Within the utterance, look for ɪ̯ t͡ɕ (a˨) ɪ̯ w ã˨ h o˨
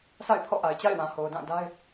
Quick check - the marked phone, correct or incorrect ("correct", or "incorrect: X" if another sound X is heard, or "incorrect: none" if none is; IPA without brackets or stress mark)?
incorrect: a̰˦˨